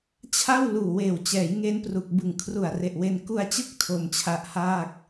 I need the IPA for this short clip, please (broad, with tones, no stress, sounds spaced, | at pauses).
t͡ɕʰ a˥˩ w l uː˨˩ w eː˨˩ w t͡ɕ ɛː˩˦ j ŋ e˦˥ n p r u˨˩ k̚ b ɯ˨˩ ŋ kʰ r u˨˩ a̯ r e˨˩ ʔ w e˧ n k u˧ a̯ t͡ɕ ɯ˦˥ k̚ tʰ o˧ m t͡ɕʰ a˦˥ ʔ h aː˥˩ k̚